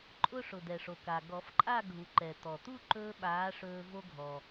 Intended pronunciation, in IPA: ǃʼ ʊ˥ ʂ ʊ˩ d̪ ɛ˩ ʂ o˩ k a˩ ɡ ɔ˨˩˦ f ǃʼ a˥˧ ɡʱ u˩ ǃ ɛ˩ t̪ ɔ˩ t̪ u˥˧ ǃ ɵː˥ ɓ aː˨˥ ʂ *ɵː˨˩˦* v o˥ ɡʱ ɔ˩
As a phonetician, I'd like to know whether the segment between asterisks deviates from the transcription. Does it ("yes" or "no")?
yes